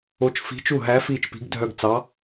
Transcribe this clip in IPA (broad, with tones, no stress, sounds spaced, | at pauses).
o˧˥ t͡ʃ f i̤˧˥ t͡ʃ u˥˩ ɦ æ˧˥ f iː˥˩ t͡ʃ p i̤˧˥ ɡ dʱ œ˥˧ ɡ t͡s ɑ˧˥